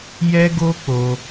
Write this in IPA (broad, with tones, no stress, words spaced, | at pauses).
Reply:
jɛ˦ɡo˦k͡po˧